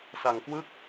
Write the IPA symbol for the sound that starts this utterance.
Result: s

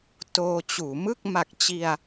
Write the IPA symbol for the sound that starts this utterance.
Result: t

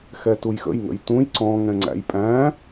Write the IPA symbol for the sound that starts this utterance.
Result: x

